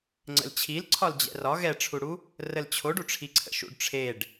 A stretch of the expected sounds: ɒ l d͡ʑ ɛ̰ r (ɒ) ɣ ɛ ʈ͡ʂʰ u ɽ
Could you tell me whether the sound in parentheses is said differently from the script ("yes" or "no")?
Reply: no